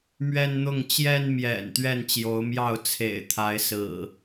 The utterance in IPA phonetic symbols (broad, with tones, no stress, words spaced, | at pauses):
mɥɛ˦nn̪ʊ˥˨ŋ t͡ɕjɛ˦nmjɛ̰˨˩n t̪ɥɛ˥˨nt͡ɕjo˨˦ʊ̯mjɑ˥˨ʊ̯ t͡sʰḛ˨˩ɪ̯t̪ʰa˨˦ɪ̯sɹ̩˨˩